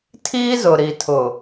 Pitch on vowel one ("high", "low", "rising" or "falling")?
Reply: high